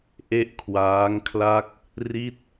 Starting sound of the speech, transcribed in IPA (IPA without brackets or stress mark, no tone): ʔ